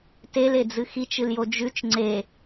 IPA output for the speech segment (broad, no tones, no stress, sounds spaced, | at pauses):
t e l e d͡z ɨ x i t͡ʃ ɨ l j o d͡ʒ ʉ t͡ʃ ŋ͡ǀ e